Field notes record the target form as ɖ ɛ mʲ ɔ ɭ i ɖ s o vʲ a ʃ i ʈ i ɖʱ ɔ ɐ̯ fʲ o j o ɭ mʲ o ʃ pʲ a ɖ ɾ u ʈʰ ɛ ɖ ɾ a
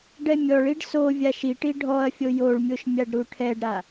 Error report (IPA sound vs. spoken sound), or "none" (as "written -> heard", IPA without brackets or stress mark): pʲ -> mʲ